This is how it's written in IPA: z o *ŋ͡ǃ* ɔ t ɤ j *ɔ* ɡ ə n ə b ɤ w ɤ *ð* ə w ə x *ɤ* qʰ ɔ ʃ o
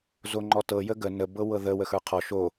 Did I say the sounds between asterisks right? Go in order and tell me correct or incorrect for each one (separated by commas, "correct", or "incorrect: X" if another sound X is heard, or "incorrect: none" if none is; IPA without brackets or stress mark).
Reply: correct, incorrect: ə, correct, incorrect: ə˞